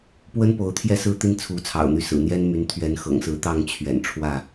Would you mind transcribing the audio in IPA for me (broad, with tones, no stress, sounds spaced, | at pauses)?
p w ə˦ n p o˨˦ ʊ̯ t̪ʰ j ɛ˥˨ s ɹ̩˥˨ t̪ i˦ n t͡sʰ u˨˦ t͡sʰ ɑ̰˨˩ ʊ̯ n̪ y˦ s ɹ̩˨˩ n̪ j ɛ˦ n m y˨˦ n t̪ʰ ɥ ɛ˨˦ n x ɤ̰˨˩ ŋ s ɹ̩˨˦ t̪ ɑ˥˨ ŋ t͡ɕʰ ɥ ɛ̰˨˩ n ʈ͡ʂʰ w ä˥˨